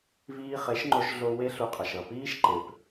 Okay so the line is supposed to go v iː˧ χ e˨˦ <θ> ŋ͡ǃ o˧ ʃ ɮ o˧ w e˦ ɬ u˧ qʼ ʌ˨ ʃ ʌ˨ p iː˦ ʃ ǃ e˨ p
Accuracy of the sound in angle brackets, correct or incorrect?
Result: incorrect